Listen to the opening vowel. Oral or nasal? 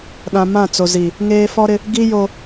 nasal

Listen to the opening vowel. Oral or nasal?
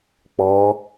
oral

